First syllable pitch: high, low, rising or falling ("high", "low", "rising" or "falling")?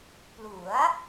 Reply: rising